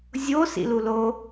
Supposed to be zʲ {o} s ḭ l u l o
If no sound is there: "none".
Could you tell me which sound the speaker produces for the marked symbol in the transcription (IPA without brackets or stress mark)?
o